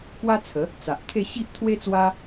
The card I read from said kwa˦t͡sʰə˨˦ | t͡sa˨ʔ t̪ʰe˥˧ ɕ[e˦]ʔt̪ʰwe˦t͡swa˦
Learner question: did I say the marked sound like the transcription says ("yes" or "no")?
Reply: no